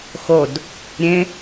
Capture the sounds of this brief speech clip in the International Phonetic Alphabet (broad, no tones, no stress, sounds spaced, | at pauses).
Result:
x o d | ɾʲ ẽ